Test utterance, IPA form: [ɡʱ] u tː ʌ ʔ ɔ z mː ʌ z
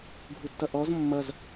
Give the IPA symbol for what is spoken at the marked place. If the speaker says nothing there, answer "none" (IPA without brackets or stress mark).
ɡʱ